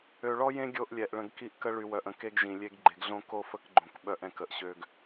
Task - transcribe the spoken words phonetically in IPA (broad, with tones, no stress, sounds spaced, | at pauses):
ø˨ ɭ ɔ˦ j ẽ˦ ɡʲ o˦ ʔ lʲ ɛ˨ ʔ ɭ ə̃˨ ɡ k i˦ ʔ k ə˦ ɭ y˨ w œ˨ ʔ ə̃˨ k e˦ ɡ ʒ ĩ˨ lʲ e˦ ɡ ɡ͡ǃ e˨ ɡ ɮ õ˦ k o˦ f ə˦ k ɡ͡ǃ õ˨ k ɓ œ˦ ʔ ɛ̃˨ k ə˨ ʔ ɕ ø˦ ɡ